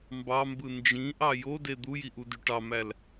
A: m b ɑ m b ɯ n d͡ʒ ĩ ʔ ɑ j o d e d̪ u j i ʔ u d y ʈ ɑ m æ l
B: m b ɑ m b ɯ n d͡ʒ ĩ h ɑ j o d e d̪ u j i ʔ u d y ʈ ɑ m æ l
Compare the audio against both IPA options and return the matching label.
A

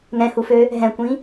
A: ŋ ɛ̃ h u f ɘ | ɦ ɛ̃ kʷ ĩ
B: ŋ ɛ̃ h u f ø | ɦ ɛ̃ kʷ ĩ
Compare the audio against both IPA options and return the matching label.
B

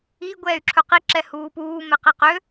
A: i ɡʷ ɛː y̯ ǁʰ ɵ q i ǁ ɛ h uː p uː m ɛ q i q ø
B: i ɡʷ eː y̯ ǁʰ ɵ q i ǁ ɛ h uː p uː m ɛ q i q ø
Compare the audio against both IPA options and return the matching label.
A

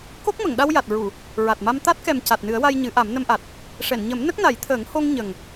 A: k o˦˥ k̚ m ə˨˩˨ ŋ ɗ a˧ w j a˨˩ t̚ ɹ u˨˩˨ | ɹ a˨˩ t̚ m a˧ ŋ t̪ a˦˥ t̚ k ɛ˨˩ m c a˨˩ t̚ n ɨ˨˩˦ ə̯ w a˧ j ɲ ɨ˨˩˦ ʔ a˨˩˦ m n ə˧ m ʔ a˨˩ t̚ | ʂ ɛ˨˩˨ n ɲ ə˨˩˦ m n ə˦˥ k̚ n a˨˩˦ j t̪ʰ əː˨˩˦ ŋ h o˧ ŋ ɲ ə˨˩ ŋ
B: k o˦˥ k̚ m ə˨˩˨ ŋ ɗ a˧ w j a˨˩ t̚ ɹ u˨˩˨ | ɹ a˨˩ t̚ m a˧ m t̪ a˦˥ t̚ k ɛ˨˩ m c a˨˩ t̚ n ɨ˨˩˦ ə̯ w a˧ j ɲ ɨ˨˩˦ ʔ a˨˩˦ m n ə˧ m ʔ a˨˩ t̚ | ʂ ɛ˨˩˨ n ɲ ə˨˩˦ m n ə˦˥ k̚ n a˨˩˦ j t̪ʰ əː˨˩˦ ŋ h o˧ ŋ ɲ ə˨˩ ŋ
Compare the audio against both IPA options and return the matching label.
B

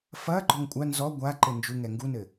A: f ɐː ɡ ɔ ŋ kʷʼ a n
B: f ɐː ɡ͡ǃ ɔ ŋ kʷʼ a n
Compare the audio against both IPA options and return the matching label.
B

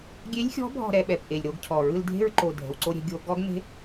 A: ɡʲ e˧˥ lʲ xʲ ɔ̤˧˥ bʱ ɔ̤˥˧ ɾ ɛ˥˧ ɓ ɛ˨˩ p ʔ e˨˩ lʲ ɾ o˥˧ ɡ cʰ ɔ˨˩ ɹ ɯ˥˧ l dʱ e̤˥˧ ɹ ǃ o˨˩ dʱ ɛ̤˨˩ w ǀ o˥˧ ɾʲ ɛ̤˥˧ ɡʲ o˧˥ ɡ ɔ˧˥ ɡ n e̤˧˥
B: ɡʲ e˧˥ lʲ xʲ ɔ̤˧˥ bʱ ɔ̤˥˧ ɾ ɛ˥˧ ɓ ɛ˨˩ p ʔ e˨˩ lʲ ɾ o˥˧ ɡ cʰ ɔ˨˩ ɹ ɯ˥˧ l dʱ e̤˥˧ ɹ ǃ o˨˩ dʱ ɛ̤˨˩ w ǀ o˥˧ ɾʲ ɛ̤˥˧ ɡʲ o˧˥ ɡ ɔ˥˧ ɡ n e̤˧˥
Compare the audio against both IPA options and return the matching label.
A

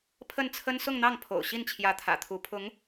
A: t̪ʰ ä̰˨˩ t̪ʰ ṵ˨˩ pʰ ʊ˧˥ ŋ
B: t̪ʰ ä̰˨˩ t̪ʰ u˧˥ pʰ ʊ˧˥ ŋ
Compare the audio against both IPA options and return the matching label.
B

